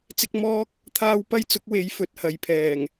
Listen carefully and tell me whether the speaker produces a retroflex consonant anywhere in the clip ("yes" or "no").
no